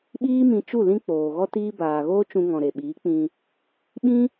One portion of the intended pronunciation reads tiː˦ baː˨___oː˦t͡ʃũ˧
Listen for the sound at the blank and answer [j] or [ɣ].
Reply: ɣ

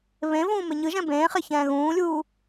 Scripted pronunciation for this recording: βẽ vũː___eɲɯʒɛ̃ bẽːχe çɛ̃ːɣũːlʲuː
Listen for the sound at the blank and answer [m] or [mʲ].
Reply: m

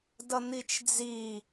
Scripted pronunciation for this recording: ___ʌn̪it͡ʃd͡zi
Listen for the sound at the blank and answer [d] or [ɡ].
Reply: d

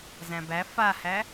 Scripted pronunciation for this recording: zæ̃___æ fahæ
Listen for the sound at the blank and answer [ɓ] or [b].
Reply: b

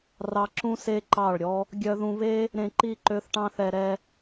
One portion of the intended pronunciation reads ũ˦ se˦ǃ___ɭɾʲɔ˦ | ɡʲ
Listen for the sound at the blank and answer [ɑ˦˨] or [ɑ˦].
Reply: ɑ˦˨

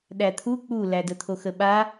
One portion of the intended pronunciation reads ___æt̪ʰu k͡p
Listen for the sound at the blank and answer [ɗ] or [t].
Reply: ɗ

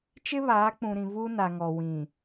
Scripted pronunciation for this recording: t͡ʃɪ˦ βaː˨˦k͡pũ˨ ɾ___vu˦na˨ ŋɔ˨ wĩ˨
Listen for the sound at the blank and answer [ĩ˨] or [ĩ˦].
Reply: ĩ˨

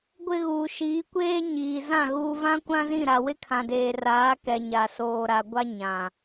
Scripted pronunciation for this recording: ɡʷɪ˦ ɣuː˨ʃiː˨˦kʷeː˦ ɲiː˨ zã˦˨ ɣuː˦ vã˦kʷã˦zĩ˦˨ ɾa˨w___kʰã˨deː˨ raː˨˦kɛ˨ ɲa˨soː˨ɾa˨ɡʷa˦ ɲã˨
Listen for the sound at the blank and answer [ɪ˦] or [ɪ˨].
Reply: ɪ˦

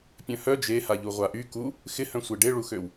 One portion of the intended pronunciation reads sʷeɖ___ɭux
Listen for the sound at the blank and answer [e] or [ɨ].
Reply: e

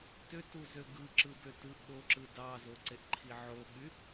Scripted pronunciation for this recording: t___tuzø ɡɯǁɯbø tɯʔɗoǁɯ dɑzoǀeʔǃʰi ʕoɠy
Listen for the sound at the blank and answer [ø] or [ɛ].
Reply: ø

